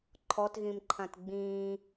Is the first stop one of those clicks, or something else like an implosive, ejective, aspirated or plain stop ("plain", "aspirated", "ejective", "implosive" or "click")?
click